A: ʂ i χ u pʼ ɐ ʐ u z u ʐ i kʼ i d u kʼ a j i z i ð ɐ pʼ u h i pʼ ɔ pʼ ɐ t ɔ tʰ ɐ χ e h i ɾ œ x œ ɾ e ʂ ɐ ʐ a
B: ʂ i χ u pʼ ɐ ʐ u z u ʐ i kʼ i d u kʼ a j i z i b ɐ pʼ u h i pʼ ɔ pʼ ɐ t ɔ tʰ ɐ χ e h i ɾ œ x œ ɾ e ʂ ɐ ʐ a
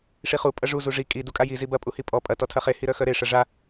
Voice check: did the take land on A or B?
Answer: B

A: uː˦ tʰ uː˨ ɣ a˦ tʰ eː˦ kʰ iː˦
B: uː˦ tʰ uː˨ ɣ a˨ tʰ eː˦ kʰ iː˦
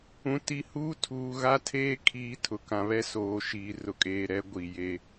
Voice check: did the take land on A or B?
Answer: A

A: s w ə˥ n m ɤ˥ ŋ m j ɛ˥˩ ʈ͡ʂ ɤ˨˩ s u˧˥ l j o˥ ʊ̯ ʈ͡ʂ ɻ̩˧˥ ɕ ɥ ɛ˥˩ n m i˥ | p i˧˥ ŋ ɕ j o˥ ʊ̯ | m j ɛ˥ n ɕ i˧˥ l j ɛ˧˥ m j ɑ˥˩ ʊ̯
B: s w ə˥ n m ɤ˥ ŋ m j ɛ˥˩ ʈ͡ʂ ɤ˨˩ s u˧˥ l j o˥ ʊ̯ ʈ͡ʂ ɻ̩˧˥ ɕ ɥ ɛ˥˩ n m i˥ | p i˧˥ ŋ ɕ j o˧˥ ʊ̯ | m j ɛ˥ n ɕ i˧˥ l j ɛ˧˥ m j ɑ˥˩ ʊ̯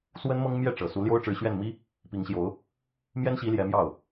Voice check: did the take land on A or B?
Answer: B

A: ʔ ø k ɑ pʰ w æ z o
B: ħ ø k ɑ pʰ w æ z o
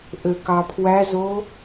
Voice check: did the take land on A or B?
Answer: A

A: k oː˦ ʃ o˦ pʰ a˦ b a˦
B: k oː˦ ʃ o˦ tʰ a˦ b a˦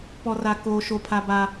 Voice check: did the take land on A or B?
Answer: A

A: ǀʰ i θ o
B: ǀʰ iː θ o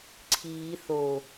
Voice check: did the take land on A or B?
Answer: B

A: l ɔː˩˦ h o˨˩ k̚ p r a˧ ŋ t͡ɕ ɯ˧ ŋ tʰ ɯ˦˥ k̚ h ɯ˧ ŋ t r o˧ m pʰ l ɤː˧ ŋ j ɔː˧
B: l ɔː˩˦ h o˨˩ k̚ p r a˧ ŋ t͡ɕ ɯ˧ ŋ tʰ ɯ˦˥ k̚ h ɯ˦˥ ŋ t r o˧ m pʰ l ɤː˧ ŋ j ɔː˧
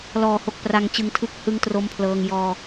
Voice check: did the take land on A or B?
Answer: A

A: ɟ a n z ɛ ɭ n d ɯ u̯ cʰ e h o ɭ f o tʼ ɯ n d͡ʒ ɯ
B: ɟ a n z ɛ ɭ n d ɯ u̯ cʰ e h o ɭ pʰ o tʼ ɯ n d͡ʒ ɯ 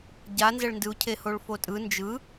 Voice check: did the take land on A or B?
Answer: A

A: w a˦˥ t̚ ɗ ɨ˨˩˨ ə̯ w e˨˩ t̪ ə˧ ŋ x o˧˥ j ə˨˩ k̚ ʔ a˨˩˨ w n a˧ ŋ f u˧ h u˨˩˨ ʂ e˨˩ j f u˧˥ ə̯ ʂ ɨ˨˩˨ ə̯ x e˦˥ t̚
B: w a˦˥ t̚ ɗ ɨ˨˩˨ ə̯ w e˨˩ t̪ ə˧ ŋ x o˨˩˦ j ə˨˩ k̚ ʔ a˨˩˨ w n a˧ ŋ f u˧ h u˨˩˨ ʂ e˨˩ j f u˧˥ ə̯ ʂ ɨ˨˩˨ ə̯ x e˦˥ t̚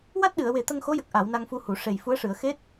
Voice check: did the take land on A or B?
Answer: A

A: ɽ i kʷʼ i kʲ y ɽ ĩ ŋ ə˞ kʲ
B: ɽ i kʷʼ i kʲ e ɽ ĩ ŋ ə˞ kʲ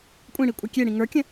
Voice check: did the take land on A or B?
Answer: B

